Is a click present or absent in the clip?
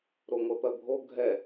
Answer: absent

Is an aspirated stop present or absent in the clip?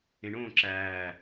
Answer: absent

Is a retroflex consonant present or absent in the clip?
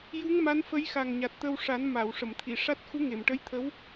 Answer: present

